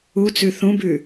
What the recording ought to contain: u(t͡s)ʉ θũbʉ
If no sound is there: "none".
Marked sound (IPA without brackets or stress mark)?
t͡s